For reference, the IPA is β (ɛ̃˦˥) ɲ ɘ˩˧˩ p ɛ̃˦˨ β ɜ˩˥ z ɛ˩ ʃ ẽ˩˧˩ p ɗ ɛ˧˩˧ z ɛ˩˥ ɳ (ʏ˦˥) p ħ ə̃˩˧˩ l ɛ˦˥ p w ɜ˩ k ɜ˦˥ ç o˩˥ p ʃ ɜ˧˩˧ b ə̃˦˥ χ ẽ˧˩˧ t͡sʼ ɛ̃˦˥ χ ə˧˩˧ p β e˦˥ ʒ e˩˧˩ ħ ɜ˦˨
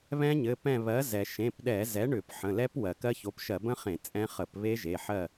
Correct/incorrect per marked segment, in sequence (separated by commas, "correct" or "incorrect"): correct, incorrect